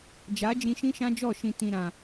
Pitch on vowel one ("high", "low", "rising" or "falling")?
rising